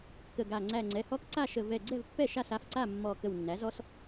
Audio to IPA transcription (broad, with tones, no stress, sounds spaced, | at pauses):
k ə˧˩ ɡ a˧˩ ŋ͡ǀ æ˧˩ ŋ͡ǀ ɛ˩˧˩ h ɔ˦ k ǀ a˥˩ ʃ ə˧˩ v ɛ˧˩ ɡ͡ǀ ɛ˥˩ v pː ɛ˥˩ ʃ a˥˩ s a˩˧˩ f ǀ a˥˩ mː ɔ˧˩ k ə˧˩ w nː æ˩˥ z ɔ˦ s